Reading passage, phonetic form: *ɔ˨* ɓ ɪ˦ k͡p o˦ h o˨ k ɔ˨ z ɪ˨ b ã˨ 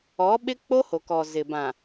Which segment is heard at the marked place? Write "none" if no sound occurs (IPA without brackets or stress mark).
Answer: ɔ˨˦